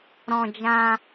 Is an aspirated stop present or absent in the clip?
absent